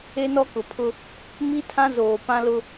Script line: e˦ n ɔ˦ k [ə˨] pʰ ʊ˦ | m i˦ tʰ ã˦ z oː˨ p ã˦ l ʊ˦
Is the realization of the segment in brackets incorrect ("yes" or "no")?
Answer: yes